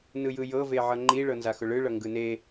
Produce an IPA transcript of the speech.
n ɯ j ɯ j ɤ v e ʕ ʌ ŋ͡ǃ i ɭ ɤ n z a x ʊ ɭ ɯ ɭ ʌ ŋ ɡ ɯ n e

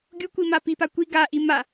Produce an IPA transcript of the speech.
ɡʲ u kʷ i m a p i p a kʷ i ɡ a ʔ i m a

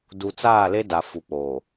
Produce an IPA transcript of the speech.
d u˨ t͡s aː˦˨ l e˦ d a˨ f u˨ k͡p oː˨

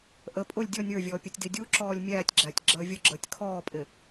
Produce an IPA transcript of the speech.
ʔ ə pʼ ʊ lʲ dʲ ɔ nʲ ə˞ vʲ ɔː pʲ ʌ tʲ d i dʲ u ǁ ɔː lʲ mʲ æː tʲ ɡ͡ǁ æ tʲ ɡ͡ǁ əː vʲ ʊ ɡ͡ǁ əː tʲ kʰ ɔː pʼ ɪ

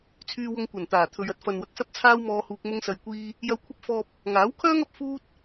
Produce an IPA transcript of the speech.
t͡sʰ yː˧ w ʊ˧ ŋ kʷ ɐ˨˩ n t̪ aː˨˩ t̪ʰ ɵ˨ ɥ ɐ˧ t̚ f ɐ˨ n w ɐ˨ k̚ s ɐ˥ p̚ t͡sʰ aː˥ w m ɔː˧ h uː˧ k̚ m ʊ˥ ŋ s ɐ˧ j kʷ iː˥ | j ɐ˧ w kʷʰ ɐ˥ p̚ f ɔː˧ p̚ | ŋ aː˨˥ w kʰ œː˥ ŋ ɐ˧ p̚ f uː˥ t̚

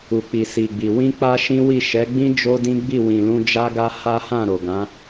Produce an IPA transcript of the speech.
u˨ k͡p i˨ s i˨ ɡ͡b i˨ w ĩ˧ k͡p a˦ ʃ ĩ˦ w i˦˨ ʃ ɛ˨˦ ɡ͡b ĩ˦ d͡ʒ o˦ d ĩ˦ ɡ͡b i˦˨ w ĩ˨ l ũ˧ d͡ʒ a˦ ɡ a˦ h a˦ h ã˦˨ ɾ o˨ ɡ ã˨˦

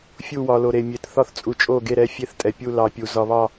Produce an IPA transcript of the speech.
fʲ u˦˨ w ɒ˨ l o˨ ɾ e˨ mʲ e˨ t θ ɒ˦˨ θ t͡sʼ u˨ t͡ʃʼ o˦˨ ɡ e˦˨ ɾ ɛ˦˨ fʲ e˦˨ θ tʼ ɛ˨ pʲ u˦˨ l ɑ˨ pʲ u˨ z ɒ˨ β ɑ˦˨

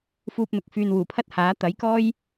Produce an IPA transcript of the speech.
f uː˧ p̚ n̪ ʊ˨˥ k̚ f yː˨ n w uː˨˩ pʰ ɐ˥ t̚ h aː˨˥ t̪ ɐ˨˥ j k ɔː˥ j

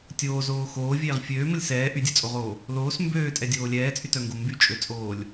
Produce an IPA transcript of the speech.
tʲ oː z oː x oː vʲ eː ʁ fʲ øː m ə lʲ s ɛː ʔ y dʲ œ t͡sʼ o ʁ oː | l oː s m b øː tʼ ɛ dʲ oː lʲ ɛː t͡sʼ y t œ ŋ ɡ o m b y t͡ʃʼ ø t͡sʼ oː lʲ

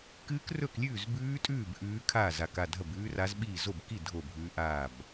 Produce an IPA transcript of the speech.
k ɨː˦˥ k r ɵ˥˨ k lʲ ʉː˥˨ z b ʉː˦˥ tʼ ʉː˥˨ b ʔ ʉː˦˥ kʰ aː˥˨ z a˥˨ k a˥˨ dʱ ɐ˥˨ b ʉː˦˥ r a˦˥ z ɓ iː˥˨ z o˥˨ b k i˥˨ dʱ o˥˨ bʱ ʉː˦˥ ʔ aː˥˨ b

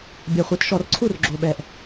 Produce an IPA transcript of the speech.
bʲ a˨˩ χʷ i˨˩˦ t ʃ ɔ˨˩˦ r ǀʰ u˥˩ r ɡ͡ǁ o˨˩ ɓ ɛ˨˩ ʔ

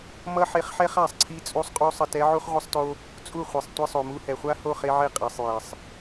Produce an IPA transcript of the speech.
m ʌ˦ ħ e˧ χ ħ ɛ˦ χ a˨ sˤ ǀʰ i˦ t͡sʼ u˦ sˤ qʼ u˦ sˤ ʌ˧ t ɛ˦ ʕ u˦ χ ʁʷ ʌ˦ sˤ t o˦ | t͡sʼ u˦˨ χʷ e˨ sˤ tʷ i˧ sˤ o˨ m u˧ h ɛ˨ χʷ a˦ h o˦˨ χ e˧ ʕ e˧ qʼ ɛ˨ sˤ j e˨ sˤ

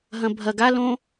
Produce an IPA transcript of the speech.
ɦ ɐ̃ bʱ ɐ ɡ a l õ

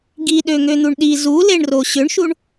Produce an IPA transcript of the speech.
ɡ i ɗ ø ŋ ø n̪ u ɳ ɗ i z u l e ɳ r o ɕ ʏ ɳ ʃ u ɳ

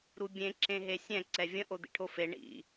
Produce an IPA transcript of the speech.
ɾ u bʲ ẽ ǁ ẽ ɦ e sʲ ɛ̃ ǀ ɛ vʲ ə̃ ʔ o d̪ ḭ ʈʰ o f e ɳ ḭ

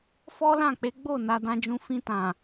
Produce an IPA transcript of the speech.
f ɔ˦ l ã˦˨ k͡p e˨˦ ɡ͡b o˦˨ n a˧ d ã˧ d͡ʒ ũ˧ f ĩ˧ t ã˨

